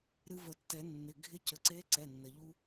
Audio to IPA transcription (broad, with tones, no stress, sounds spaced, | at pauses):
ɾ ɨ˧ v ə˨˩˦ tː ɛ˨˩˦ nː ɪ˩˧˩ ɡʱ ɪ˧˥ c ə˩˧˩ ǀ e˧˥ ǀ ɛ˩˧˩ nː ə˩ ʎ u˧